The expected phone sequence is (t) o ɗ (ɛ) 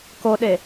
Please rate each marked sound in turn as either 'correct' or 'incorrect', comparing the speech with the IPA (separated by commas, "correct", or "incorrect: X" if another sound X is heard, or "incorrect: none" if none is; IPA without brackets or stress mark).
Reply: incorrect: k, incorrect: e